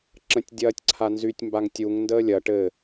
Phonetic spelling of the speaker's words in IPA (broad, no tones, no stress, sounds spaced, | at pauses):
ǁ ə̃ tʲ dʲ ɐː tʲ ǀʰ a n z y tʲ m b a ŋ tʲ u ŋ n d əː lʲ ɐ ʈ ɘ